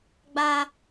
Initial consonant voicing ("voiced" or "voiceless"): voiced